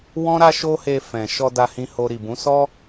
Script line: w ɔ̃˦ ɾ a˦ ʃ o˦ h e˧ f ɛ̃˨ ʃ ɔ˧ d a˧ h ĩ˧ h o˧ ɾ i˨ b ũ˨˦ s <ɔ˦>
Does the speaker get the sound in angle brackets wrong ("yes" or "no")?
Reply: no